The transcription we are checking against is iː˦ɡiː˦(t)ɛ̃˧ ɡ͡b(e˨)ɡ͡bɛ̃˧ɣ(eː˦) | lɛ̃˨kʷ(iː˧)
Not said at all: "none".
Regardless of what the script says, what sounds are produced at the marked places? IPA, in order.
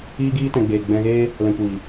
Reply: t, eː˨, eː˦, iː˨

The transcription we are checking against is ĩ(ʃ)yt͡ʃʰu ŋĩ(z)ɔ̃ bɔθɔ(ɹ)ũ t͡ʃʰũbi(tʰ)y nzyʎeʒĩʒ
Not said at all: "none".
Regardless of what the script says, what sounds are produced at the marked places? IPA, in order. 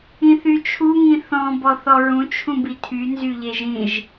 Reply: θ, θ, ɹ, tʰ

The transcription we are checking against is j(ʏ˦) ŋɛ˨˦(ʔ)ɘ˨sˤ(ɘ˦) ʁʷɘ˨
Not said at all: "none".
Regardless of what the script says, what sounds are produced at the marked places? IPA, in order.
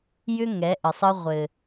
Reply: ʏ˦, ʔ, ɘ˦

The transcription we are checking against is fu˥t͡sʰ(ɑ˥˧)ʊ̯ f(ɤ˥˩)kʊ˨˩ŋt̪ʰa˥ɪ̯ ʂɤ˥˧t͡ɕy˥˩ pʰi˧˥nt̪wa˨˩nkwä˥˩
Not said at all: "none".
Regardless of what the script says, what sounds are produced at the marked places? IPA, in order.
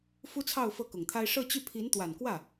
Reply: ɑ˥˧, ɤ˥˩

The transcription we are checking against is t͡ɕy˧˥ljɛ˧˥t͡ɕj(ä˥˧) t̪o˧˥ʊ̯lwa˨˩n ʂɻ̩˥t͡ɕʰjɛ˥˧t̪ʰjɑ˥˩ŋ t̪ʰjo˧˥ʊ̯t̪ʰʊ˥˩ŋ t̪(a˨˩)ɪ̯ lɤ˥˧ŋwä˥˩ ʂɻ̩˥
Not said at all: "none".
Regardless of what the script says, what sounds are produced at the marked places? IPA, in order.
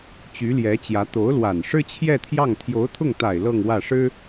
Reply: ä˧˥, a˨˩

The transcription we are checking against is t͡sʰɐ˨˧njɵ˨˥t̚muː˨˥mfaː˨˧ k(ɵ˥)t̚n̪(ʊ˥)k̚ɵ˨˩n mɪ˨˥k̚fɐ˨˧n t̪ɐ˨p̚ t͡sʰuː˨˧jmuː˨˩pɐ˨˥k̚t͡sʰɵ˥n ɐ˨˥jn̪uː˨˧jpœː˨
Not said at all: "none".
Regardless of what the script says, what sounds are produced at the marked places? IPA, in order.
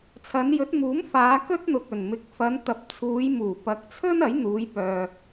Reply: ɵ˥, ʊ˨

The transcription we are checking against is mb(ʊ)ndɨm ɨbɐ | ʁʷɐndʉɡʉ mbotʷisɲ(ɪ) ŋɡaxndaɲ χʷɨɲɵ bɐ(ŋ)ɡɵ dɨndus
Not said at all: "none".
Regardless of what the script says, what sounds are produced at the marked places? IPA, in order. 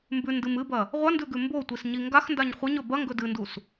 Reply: ʉ, i, ŋ

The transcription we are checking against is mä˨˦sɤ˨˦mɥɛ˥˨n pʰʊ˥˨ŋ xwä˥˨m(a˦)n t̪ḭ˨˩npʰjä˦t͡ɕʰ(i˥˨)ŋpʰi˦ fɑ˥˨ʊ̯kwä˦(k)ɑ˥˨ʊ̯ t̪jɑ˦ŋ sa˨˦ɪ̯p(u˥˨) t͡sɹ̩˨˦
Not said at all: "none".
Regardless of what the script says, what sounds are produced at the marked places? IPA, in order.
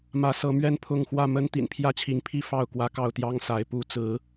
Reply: ə˦, i˨˦, k, u˥˨

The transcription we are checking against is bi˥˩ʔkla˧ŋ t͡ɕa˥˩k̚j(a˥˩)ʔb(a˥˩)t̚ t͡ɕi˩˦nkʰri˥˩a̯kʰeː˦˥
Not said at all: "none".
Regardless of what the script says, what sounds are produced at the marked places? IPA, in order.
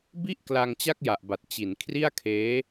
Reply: a˨˩, a˨˩

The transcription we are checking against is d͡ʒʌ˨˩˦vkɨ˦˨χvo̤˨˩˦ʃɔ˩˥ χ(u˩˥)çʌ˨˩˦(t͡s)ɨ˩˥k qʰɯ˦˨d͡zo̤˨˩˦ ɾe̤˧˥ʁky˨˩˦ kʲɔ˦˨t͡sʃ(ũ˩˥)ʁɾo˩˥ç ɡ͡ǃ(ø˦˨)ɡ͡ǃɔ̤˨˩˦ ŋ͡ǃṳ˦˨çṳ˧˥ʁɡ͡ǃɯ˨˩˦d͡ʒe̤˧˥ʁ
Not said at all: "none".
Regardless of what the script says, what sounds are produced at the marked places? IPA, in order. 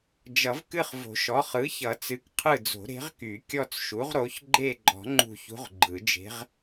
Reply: ɯ˩˥, t͡s, u˩˥, e˦˨

